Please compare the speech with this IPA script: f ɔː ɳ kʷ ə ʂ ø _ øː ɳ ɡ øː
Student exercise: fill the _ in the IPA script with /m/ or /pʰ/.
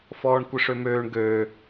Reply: m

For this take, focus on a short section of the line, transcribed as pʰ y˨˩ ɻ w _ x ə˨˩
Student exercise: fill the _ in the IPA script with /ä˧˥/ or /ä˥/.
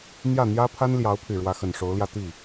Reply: ä˧˥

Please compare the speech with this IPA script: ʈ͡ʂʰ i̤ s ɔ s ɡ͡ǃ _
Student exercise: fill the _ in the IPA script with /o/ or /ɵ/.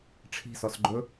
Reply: ɵ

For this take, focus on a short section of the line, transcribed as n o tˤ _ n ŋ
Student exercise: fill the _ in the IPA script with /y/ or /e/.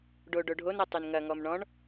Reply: y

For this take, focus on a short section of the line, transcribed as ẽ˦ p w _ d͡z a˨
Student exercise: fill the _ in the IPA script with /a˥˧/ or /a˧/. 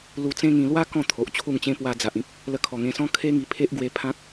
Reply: a˧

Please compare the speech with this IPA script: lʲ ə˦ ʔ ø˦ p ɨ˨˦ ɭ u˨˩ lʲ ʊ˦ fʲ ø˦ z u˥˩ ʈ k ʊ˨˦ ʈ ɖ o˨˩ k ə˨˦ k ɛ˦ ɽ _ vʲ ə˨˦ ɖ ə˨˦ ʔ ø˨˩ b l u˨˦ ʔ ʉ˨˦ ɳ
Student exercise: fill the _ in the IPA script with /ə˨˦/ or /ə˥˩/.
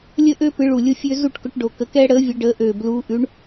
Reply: ə˨˦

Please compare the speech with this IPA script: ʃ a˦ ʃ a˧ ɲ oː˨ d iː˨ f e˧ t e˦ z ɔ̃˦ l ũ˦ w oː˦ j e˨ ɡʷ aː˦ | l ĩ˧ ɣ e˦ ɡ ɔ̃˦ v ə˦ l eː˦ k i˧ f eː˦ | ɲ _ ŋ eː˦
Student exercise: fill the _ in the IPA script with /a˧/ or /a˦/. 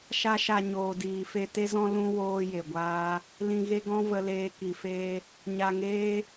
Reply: a˧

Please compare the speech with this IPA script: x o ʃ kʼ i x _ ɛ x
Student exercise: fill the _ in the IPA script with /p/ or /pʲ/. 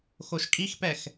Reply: p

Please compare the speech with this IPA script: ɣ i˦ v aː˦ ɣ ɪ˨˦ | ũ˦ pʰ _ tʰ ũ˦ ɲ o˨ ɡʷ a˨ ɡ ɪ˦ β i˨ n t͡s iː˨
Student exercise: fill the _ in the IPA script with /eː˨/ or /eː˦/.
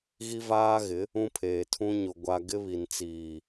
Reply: eː˨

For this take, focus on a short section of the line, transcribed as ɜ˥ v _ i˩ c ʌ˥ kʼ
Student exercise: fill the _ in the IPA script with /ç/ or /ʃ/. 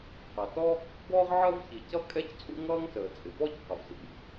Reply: ç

